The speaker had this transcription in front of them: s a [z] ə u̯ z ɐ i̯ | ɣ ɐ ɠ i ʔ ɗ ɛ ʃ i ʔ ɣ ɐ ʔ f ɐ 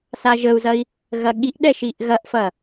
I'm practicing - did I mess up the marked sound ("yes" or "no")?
yes